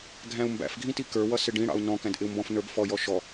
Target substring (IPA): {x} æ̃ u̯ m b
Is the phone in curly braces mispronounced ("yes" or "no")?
yes